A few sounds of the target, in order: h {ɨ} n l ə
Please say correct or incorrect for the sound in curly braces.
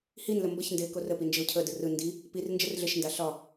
incorrect